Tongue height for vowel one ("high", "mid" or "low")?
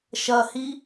low